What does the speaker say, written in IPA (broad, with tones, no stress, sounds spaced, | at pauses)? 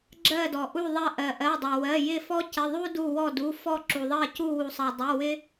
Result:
ɡ͡ǁ ɜ˦˨ d ɔ˩ ʔ u˦˨ ðˤ ɜ˦˨ ʔ ɜ˩ ʔ ɜ˩˧˩ dˤ ɜ˩ w ɜ˩˧˩ j ɪ˦˨ f ɔ˥ c ɪ˩˧˩ ðˤ u˥ d u˦˨ w ɔ˦˨ d u˩˧˩ f ɔ˦˨ ǁ u˩ ðˤ ɜ˦˨ c u˦˨ w u˩ sˤ ɜ˩ dˤ u˩˧˩ w ɪ˥